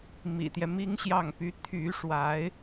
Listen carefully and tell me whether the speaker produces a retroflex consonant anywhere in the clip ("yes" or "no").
yes